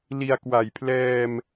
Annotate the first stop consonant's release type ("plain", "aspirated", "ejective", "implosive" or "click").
plain